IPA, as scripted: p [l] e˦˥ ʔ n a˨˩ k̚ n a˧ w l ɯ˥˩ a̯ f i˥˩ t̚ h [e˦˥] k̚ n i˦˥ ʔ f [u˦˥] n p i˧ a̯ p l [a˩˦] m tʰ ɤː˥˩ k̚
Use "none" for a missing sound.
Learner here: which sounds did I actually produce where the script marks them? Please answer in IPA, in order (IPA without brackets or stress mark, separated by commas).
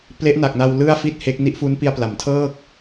l, e˦˥, u˦˥, a˩˦